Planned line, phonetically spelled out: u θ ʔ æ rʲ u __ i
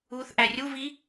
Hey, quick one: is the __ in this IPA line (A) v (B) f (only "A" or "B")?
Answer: A